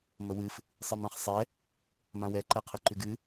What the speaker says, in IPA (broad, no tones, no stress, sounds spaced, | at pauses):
m ə w ɨ f | sˤ ɨ m ã χ sˤ ɛ | m ã w ɛ ǃ ɛ qʰ ɨ ǃ ʉ ɡ ɨ